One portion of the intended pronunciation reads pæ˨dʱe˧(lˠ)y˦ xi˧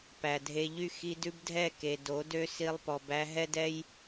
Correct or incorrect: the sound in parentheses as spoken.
incorrect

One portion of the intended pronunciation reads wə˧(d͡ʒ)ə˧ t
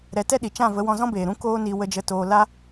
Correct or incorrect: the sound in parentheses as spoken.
correct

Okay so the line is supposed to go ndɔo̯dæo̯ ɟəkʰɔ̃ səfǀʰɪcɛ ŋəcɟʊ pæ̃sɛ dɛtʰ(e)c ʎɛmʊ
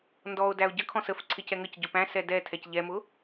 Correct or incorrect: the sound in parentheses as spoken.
incorrect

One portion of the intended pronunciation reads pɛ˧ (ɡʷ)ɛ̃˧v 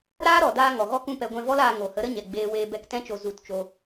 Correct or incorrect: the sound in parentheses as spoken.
correct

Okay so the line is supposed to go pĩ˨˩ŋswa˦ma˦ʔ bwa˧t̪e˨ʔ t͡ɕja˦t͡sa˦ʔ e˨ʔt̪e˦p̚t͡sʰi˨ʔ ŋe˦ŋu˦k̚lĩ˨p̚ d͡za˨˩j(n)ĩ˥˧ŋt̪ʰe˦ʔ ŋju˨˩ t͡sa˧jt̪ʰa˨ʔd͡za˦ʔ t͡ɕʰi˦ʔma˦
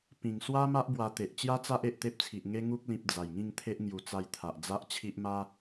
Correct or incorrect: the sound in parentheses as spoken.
incorrect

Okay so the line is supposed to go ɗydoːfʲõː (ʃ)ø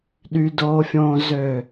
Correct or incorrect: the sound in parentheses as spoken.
incorrect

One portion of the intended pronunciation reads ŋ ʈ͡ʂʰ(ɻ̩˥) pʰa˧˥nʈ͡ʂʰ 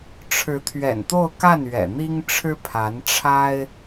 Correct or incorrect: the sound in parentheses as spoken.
correct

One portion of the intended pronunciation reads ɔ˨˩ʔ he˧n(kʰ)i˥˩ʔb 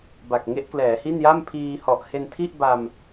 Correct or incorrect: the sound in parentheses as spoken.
incorrect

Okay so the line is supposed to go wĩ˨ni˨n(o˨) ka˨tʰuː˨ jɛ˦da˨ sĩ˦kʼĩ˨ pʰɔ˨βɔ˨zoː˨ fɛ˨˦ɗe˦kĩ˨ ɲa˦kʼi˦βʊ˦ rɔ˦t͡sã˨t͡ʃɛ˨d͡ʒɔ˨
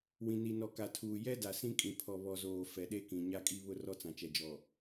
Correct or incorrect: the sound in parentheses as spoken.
incorrect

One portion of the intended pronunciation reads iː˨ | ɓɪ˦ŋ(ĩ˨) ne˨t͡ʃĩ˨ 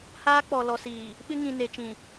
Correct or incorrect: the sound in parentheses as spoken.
correct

